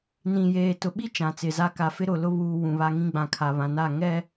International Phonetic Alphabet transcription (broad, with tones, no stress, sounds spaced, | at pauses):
n ĩ˨ j eː˨ t ʊ˨ ɓ i˦ t͡ʃ ã˨ t͡s ɪ˨ z a˦ k a˨ f ɪ˦ ɾ ʊ˨ l ʊ˦ β uː˨ w ũ˨ β a˦ ŋ ĩ˦ ɡ͡b ã˨ kʰ a˨ β ã˨ n a˦˨ ŋ ɛ˦˨